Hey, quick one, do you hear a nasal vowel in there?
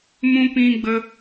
yes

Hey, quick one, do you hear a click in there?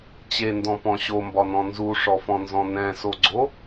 yes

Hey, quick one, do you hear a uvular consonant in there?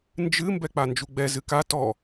no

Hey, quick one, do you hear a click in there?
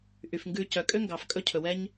no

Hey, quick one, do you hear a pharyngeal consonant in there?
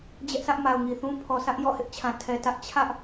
no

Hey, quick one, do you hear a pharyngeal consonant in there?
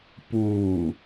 no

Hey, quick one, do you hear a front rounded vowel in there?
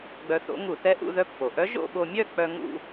yes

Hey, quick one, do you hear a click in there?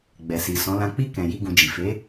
no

